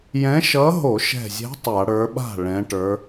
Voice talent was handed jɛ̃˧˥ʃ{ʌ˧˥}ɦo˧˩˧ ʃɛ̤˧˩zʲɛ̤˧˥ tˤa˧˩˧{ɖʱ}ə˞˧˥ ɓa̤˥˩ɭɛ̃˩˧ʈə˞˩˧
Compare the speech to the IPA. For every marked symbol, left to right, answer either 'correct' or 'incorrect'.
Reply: correct, incorrect

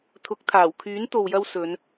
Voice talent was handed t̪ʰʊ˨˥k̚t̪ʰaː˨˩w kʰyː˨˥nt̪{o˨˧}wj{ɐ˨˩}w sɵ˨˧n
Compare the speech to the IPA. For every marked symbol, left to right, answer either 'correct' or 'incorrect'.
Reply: incorrect, incorrect

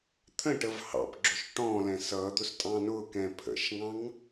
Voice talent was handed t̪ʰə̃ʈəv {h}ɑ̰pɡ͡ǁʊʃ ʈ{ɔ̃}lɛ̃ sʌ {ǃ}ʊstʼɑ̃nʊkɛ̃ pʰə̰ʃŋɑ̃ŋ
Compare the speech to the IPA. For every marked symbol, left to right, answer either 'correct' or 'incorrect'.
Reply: correct, correct, incorrect

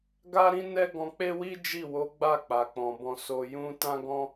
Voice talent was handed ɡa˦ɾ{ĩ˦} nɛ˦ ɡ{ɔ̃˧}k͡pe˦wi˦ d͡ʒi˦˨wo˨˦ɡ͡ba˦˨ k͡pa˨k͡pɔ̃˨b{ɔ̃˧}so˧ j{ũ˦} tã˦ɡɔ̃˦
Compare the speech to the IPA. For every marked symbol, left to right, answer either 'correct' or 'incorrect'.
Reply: correct, correct, correct, correct

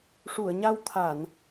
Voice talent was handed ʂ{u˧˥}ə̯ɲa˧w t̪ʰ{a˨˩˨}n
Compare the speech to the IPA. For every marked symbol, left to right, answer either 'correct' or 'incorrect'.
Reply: incorrect, correct

